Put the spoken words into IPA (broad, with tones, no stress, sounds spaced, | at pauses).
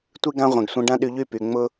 tʷ i˦ ɡ ã˦ ʁʷ ĩ˨ ɡ sʷ ĩ˧ ɖ ã˦ ɗ y˧ ʎ y˦˨ p y˨ ŋ͡m ʊ˧